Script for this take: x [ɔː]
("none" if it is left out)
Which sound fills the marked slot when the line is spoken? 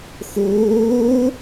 oː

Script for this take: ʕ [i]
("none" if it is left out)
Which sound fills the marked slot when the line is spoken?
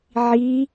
i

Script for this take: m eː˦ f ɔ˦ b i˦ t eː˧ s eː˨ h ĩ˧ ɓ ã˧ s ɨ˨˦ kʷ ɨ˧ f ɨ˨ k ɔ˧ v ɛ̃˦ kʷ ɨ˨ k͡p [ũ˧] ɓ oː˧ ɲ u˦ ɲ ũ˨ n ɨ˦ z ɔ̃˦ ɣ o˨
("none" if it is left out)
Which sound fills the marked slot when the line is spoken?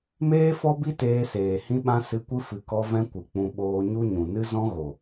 ũ˧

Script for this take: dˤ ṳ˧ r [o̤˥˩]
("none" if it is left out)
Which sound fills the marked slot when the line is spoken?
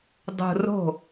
o̤˥˩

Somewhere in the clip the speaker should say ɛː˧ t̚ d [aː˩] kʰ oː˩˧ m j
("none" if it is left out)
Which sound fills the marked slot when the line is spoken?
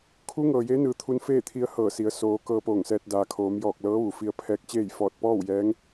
aː˩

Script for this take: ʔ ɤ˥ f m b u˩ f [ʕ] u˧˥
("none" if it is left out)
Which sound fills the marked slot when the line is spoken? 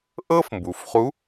χ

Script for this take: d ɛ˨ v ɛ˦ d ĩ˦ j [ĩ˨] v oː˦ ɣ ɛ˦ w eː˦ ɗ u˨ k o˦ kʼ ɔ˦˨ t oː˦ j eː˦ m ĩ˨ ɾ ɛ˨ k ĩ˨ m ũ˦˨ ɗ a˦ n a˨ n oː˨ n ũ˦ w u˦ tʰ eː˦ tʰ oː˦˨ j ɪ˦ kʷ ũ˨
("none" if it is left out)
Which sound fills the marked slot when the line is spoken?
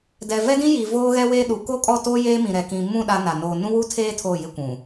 i˨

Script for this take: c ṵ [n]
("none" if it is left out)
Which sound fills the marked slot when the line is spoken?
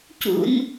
n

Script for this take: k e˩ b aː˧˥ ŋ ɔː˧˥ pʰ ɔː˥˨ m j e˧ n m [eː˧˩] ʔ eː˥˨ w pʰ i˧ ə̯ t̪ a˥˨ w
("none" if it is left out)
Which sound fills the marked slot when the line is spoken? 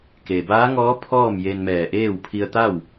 ɛː˧˩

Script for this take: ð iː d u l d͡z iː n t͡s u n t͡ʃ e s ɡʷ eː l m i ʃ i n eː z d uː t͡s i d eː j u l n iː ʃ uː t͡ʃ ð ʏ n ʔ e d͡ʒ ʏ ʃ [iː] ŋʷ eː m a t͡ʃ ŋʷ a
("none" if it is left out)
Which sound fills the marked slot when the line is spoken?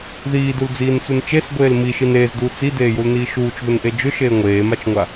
eː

